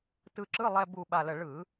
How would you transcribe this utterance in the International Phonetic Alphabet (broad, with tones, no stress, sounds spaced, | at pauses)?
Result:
t ɯ˧ ǁ ɯ˧˥˧ lˠ ɛ˧ b u˨˩ ɓ a˨˩ l ə˨˩ ɭ ɯ˧˩˧